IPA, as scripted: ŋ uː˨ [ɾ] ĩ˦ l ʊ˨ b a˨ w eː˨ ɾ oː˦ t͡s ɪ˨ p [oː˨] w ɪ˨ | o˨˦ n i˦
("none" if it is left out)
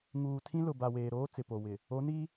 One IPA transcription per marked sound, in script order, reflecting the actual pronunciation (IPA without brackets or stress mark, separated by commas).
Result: tʰ, o˨